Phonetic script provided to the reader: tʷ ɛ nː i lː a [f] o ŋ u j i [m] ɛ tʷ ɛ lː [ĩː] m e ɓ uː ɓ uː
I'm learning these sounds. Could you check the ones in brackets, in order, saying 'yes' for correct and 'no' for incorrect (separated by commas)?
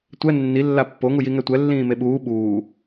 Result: no, no, yes